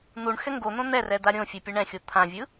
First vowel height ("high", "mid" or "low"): high